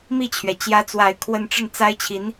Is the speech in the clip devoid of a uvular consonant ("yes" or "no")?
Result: yes